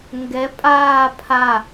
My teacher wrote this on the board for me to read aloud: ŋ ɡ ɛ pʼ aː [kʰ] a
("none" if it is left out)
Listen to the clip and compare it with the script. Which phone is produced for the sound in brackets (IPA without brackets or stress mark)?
pʰ